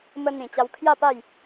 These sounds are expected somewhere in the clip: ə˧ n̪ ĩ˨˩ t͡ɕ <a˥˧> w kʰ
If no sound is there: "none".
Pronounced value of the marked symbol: a˧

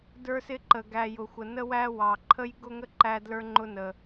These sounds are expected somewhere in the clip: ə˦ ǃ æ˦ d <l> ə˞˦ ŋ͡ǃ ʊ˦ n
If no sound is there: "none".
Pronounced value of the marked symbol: l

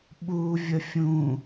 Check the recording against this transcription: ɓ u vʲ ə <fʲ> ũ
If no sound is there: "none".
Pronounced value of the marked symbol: fʲ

